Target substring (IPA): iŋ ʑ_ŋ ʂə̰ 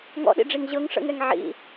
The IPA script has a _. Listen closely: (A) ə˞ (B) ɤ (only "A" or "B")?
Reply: B